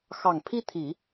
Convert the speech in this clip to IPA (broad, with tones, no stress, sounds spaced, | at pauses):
x ɑ˨˩ ŋ pʰ i˥˩ t̪ʰ i˨˩˦